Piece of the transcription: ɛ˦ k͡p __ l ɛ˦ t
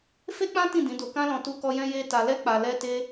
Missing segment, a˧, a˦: a˧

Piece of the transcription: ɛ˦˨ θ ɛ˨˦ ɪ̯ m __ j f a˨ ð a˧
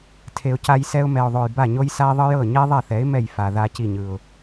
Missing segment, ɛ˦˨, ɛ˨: ɛ˦˨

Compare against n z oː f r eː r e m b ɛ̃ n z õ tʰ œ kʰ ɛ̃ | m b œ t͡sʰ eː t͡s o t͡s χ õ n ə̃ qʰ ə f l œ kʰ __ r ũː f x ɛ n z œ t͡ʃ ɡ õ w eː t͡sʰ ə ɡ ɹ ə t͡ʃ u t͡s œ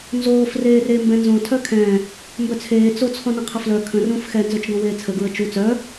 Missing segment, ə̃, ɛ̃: ə̃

